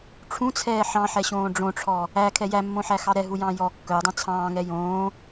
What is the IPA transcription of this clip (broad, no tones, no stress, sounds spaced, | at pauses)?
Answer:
ʈ͡ʂʰ ũ t͡sʰ ɛː ħ ɑ̃ ħ ɛ ɕ õː ɖ͡ʐ õ ʈ͡ʂʰ ɔ | æ kʰ ɛ j æ mː õ ħ æ x ɑ ɾ ɛ ɦ u j ɑ̃ː j ɔ kː œ dˤ õ t͡sʰ ɑ̃ː ŋ ɛ j õː